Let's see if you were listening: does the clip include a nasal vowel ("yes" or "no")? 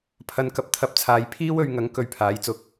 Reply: no